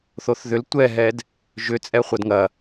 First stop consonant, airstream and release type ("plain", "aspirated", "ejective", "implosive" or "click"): plain